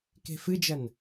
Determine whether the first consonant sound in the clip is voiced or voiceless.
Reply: voiceless